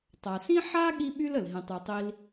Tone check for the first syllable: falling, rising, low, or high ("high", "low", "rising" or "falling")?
low